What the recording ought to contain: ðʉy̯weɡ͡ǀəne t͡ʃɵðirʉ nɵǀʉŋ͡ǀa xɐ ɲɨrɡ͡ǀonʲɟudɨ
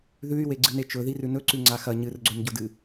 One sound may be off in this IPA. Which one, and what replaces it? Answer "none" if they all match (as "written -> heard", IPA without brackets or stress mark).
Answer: ə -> ɨ